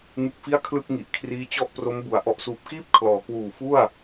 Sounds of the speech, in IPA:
ŋ ɯ˦˥ k̚ f i˥˩ a̯ kʰ l ɯ˥˩ k̚ ŋ i˨˩ ʔ kʰ r iː˦˥ t͡ɕ ɔ˥˩ ʔ p r o˦˥ m b u˩˦ a̯ ʔ ɔ˨˩ ʔ s uː˨˩ p̚ k iː˥˩ p̚ kʰ l ɔː˩˦ k w uː˨˩ f u˥˩ a̯

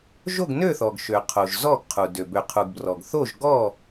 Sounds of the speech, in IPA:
ʒ o˥˨ ɡ n ø˥˨ θ ɔ˩ ɡ ʃ ø˩ qʰ o˩ ʒ z ɔ˥˨ ɡ qʰ u˩ d ø˩ b ø˩ qʰ u˩ ɡ b r ɔ˩ ɡ θ o˥˨ ʒ ɡ ɔ˥˨

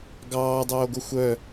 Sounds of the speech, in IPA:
ɡ ɑː dˤ oː ɡ o xʷ œ

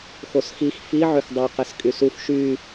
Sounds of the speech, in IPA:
x o s x i x f i ʕ ø x dˤ u q ɛ s kʼ y s u f ʃ y

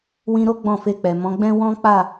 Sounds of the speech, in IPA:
w ĩ˧ ɾ o˦ ɡ͡b ɔ̃˦˨ f e˧ k͡p ɛ˨ m ɔ̃˨˦ ɡ͡b ɛ̃˦ w ɔ̃˦ k͡p a˦˨

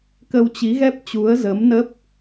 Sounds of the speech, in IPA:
k ə˧ w t͡ɕ i˨˦ ɣ ɛ˦˥ p̚ t͡ɕ u˨˦ ə̯ z ə˨˦ m n ə˦˥ p̚

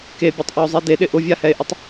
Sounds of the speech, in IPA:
k e bʲ o tˤ ʔ u o̯ zˤ i d e ɗ ɪ ʔ ʊ vʲ a h ɛ e̯ ʔ ɪ tˤ

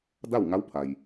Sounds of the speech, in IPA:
d a˥˨ w ŋ a˧˥ w pʰ a˩ j

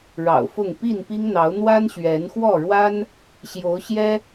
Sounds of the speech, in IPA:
ɻ ɑ̰˨˩ ʊ̯ f ʊ˥˨ ŋ p i˥˨ n p i˦ ŋ n̪ ɑ˨˦ ʊ̯ n̪ w a˦ n ɕ ɥ ɛ˨˦ n x w ɔ˥˨ ɻ w a˦ n | ɕ j o˨˦ ʊ̯ ɕ j ɛ˦

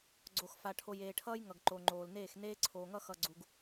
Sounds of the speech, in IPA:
ɡ͡ǀ o˨ x f a˨ ʈʰ o˨ j eː˨ ʈʰ ʌː˦ j ŋ ʌ˨ ɡ ǃ o˨ ŋ͡ǃ oː˨ l n eː˦˨ x n eː˦ ǀʰ oː˨ ŋ ʌ˦ x ʌ˨ ɡ͡ǀ u˨ ɡ

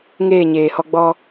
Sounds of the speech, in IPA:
ŋ eː˦˨ ɲ eː˨ h ɔ˦ ɡ͡b ɔ˦

